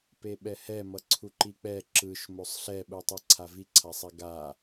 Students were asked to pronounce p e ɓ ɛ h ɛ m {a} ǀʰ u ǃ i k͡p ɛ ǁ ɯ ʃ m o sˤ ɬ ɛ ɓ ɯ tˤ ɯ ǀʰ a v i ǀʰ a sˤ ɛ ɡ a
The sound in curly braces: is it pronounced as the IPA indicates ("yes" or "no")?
no